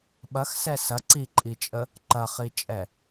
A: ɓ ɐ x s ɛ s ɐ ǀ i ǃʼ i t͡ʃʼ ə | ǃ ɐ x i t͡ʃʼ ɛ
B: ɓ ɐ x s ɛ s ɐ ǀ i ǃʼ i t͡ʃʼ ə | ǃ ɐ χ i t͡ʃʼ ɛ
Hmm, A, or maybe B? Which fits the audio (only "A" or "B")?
B